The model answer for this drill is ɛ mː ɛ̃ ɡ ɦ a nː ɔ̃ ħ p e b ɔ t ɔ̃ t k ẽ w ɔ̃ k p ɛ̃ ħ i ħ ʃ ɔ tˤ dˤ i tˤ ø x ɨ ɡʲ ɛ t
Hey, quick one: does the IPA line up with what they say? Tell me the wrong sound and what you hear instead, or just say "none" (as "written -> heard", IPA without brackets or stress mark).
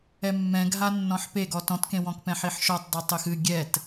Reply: b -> ɡ